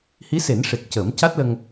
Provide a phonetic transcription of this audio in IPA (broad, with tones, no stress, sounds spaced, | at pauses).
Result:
h i˧˥ s e˨˩˦ n ʂ e˨˩ k̚ c ə˨˩˦ m c a˦˥ t̚ l ə˧ ŋ